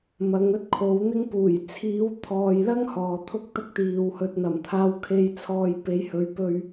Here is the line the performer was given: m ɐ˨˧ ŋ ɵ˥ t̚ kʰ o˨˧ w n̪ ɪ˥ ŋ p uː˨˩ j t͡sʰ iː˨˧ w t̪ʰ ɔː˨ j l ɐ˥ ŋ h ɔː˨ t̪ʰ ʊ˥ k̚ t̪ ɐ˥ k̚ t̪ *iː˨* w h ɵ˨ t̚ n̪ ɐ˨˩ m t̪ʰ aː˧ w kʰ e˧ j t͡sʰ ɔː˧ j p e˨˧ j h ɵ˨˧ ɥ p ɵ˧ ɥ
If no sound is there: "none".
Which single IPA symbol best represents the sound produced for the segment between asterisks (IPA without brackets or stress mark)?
iː˨